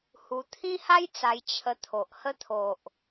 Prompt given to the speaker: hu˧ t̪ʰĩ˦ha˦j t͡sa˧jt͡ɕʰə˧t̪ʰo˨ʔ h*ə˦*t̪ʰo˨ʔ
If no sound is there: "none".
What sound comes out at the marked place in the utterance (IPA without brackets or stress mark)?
ə˦